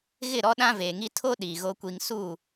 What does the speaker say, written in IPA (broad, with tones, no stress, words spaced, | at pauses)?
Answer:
ɣɪ˦˨ ɾɔ˦ɗã˦veː˨ŋi˦ tʰo˦ ɗiː˨ɣo˦kʷi˦ŋ su˦˨